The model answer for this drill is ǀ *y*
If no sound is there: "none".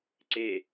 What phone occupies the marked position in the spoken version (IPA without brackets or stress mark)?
e